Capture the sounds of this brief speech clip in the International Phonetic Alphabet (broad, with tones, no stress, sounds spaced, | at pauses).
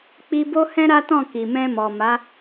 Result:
k͡p i˧ b o˦ h ɛ̃˦ ɾ a˦ t ɔ̃˦˨ k i˨ m ɛ̃˧ m ɔ˨ m a˨˦